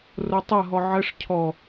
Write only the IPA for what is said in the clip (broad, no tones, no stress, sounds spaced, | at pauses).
r o tˤ ɐ ɦ ɔ ʕ ə ʂ cʰ ɔ